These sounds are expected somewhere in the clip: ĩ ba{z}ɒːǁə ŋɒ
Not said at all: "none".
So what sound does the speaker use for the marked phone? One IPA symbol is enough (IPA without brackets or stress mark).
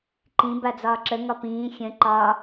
d͡z